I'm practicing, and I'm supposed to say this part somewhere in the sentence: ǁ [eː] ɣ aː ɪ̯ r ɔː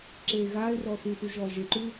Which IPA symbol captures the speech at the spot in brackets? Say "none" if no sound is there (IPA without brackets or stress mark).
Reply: eː